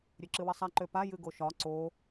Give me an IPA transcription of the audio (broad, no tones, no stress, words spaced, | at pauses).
ɾʲøǁɨwɘsˤa ǃøpa jɨɡoʃɒ ǀo